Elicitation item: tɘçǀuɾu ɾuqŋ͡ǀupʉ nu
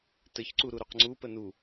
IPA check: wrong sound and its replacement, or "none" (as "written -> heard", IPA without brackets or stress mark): ʉ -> ə